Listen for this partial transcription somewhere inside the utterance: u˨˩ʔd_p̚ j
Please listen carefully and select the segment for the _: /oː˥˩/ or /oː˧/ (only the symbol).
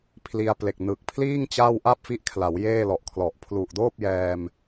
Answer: oː˥˩